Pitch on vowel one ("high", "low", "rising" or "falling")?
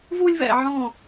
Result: high